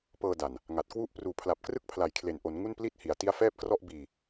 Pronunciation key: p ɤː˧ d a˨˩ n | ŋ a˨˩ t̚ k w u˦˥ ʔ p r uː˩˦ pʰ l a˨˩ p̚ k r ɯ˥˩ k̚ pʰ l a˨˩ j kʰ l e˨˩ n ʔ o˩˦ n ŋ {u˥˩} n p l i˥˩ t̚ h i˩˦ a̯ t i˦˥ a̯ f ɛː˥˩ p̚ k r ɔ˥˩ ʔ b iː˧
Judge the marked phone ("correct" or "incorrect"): correct